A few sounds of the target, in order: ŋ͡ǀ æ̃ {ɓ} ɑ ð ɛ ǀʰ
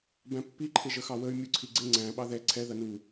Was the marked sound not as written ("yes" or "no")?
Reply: no